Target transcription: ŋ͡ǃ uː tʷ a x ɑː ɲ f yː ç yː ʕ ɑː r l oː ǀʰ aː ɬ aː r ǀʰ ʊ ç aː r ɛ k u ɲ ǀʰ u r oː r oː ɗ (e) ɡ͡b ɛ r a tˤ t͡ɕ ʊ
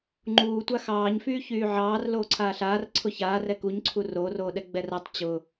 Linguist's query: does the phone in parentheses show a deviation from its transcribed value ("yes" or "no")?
yes